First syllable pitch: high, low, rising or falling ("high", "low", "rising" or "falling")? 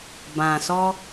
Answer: low